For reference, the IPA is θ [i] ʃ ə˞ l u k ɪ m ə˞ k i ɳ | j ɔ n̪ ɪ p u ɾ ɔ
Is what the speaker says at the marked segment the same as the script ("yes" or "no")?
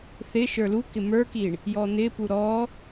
no